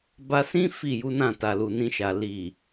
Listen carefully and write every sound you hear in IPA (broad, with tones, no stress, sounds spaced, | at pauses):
b a˧ s ĩ˦ f i˦˨ j u˨˦ n ã˦˨ t a˨ l u˨ n ĩ˧ ʃ a˨ l i˨